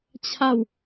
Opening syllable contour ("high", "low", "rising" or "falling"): falling